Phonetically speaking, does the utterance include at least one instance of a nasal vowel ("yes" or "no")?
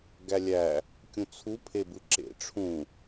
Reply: yes